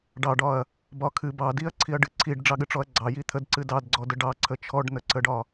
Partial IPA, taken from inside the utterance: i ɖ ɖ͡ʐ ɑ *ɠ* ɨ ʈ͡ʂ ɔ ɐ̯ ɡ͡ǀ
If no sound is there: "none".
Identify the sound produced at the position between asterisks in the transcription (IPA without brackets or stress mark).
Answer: ɠ